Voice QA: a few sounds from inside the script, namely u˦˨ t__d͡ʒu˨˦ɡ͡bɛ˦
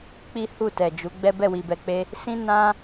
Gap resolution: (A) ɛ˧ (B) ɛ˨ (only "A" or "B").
B